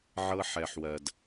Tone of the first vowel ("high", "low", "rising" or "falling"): high